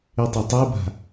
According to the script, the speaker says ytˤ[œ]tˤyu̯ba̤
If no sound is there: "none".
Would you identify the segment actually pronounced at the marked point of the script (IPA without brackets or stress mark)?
œ